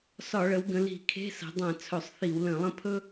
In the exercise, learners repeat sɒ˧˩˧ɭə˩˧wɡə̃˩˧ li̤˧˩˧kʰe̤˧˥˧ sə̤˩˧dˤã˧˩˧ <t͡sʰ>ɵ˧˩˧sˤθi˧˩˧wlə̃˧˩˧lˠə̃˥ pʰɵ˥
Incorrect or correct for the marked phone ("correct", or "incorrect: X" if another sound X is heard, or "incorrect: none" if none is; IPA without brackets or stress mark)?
correct